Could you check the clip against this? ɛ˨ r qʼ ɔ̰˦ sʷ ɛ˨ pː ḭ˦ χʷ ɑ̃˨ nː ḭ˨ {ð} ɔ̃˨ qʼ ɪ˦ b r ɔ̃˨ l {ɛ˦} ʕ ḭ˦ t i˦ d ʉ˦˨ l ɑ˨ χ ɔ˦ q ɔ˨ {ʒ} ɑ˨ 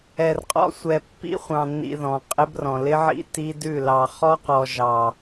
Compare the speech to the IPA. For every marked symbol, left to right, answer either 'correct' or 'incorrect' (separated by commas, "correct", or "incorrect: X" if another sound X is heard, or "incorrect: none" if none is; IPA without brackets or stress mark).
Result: correct, incorrect: ɪ˦, correct